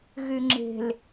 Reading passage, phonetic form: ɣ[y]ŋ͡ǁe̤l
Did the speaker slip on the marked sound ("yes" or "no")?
no